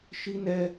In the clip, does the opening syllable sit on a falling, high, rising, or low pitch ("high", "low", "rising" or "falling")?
high